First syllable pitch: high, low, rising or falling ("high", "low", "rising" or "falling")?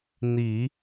low